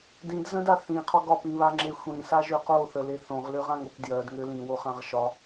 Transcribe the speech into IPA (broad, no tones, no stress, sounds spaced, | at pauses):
d ĩ d z ə̃ d a θ ĩ qʰ ɔ ɡ ɒ p ĩ β a ŋ͡ǁ e xʷ ĩ s a ʒ ø q o θ ə l e θ õ ʁ l ø ʁ ã ŋ o p d j ɜ d ŋ ø l ĩ w o χ ã ʁ ʃ ɒ